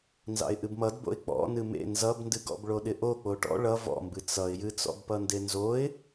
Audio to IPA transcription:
n z ɑ̰ ɪ̯ ʔ ɨ b m ʌ d b o̰ ɪ̯ k͡p ɔ̰ n ɨ m ḛ n z ʌ b n d ɨ ɡ ɔ̰ b ɭ o ɗ ɪ ʔ o k͡p o ʈ ɔ̰ ɭ ʌ v ɔ̰ m b ɨ t͡s ʌ ɪ̯ j ɨ t͡s ɔ̰ b p ʌ n d e n z o ɪ̯

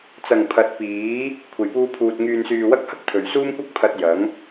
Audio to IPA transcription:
t͡s ɐ˨˩ ŋ pʰ ɐ˨˥ t̚ p iː˨˥ | kʷʰ e˨˩ j p uː˧ pʰ uː˨ t̚ ŋ yː˨ n s yː˨ w ɐ˥ k̚ h ɐ˥ k̚ t̪ʰ ɵ˨˩ ɥ s uː˥ m kʷ ɐ˥ k̚ pʰ ɐ˧ t̚ j ɐ˨˥ ŋ

